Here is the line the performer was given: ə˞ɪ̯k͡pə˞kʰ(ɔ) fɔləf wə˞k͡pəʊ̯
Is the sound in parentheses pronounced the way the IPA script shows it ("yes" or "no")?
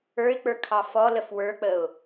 no